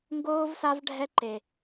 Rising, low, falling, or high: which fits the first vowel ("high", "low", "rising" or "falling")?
high